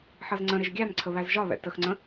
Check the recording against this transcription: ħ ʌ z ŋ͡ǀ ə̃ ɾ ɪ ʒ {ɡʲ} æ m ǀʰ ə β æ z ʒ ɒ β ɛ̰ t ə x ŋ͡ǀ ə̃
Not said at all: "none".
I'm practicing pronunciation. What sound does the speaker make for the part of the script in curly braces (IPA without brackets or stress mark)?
ɡʲ